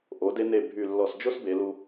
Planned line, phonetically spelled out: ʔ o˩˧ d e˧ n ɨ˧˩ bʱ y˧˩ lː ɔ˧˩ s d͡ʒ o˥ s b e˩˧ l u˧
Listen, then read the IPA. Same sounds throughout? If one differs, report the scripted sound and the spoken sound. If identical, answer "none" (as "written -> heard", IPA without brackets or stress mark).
ɨ˧˩ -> e˧˩